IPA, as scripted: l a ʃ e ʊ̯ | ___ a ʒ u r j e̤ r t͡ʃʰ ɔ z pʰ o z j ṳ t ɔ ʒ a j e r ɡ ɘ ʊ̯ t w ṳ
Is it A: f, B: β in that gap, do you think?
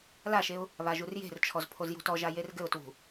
B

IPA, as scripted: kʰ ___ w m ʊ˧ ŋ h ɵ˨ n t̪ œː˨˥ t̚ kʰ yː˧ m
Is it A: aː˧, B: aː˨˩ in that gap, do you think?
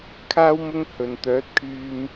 A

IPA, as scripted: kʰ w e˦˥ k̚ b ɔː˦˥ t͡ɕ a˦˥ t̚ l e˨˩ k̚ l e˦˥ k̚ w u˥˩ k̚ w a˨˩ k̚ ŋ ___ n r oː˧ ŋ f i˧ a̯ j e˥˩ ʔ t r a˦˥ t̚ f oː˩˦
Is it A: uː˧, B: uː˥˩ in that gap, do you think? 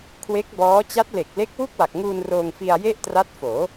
A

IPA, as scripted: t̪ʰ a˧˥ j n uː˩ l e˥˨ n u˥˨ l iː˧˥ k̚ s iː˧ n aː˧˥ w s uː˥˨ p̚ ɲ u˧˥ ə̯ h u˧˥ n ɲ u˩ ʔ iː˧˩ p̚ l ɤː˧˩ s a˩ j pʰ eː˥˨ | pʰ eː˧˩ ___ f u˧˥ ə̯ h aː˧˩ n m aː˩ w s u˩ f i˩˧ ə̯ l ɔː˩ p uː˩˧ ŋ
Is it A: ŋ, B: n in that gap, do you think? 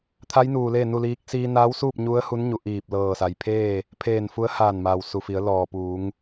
B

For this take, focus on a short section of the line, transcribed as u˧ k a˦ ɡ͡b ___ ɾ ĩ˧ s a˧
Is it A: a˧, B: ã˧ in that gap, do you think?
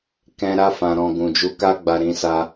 A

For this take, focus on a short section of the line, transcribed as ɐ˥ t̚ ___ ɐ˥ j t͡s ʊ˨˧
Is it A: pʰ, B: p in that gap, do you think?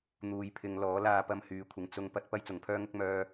B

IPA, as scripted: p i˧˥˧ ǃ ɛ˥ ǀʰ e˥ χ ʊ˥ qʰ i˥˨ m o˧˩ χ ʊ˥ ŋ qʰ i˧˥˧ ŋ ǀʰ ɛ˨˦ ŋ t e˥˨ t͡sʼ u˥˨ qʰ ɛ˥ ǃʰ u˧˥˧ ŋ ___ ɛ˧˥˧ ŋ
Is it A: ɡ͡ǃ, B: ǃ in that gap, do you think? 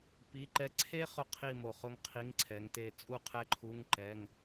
B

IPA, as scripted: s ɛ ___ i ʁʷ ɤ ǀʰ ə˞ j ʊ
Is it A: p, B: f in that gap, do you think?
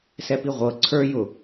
A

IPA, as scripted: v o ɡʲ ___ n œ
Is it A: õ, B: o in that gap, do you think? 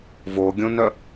A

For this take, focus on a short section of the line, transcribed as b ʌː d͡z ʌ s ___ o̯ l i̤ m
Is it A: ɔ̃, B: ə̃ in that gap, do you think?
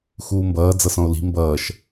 A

